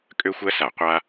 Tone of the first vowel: high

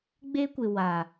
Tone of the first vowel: high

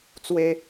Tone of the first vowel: high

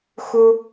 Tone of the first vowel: high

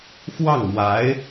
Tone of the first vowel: falling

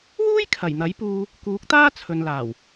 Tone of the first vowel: high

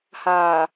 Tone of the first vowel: low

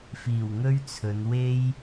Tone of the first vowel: low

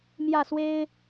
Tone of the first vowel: falling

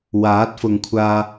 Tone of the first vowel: rising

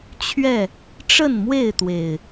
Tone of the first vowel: falling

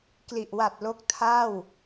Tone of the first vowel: low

